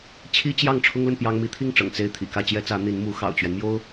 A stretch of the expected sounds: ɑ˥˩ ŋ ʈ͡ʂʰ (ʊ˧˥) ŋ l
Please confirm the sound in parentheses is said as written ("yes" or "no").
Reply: no